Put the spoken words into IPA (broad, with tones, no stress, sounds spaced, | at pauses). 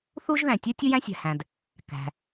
θ u˥ ʒ ð æ̃˩ tʲ u˥ tʲ u˥ j æ̃˥ sʲ æ̤˩ h æ̃˩ d | k æ̤˩